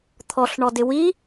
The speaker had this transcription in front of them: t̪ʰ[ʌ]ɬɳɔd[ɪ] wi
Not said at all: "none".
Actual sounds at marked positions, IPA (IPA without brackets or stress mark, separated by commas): ɔ, ɪ